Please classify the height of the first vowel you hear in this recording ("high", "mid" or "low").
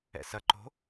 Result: mid